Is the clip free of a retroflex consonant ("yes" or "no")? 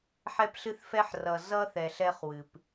yes